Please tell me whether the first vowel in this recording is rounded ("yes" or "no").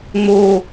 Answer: yes